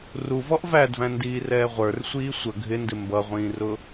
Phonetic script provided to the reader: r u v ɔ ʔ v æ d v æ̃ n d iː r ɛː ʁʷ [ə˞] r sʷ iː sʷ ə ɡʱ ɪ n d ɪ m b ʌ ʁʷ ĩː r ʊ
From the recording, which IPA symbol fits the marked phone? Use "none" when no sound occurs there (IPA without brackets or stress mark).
ə˞